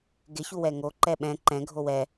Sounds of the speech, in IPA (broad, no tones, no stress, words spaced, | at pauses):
ɡɪ çuwɛŋo ǃɛɓɛ̃ ǃɛ̃ ɡʱowɛ